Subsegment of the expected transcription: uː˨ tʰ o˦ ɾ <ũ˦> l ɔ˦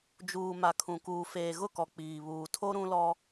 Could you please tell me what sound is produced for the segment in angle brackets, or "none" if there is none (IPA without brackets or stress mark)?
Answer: ũ˦